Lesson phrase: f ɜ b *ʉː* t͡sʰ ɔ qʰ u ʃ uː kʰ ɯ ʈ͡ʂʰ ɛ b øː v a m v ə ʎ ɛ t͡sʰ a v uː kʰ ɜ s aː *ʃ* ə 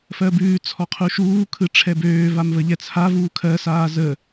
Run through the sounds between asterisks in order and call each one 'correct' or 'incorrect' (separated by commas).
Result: correct, incorrect